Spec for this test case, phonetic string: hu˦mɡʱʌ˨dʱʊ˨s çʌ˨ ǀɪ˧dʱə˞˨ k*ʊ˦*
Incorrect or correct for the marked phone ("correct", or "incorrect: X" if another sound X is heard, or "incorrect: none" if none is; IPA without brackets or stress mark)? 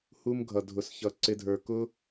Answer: correct